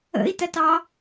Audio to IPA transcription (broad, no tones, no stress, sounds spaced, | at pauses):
ə̰ i̯ t ɜ t ɑ